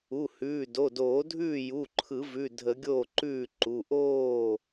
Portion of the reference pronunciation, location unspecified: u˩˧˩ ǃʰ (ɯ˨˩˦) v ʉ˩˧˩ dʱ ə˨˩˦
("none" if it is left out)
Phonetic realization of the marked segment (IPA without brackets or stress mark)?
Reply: ɯ˨˩˦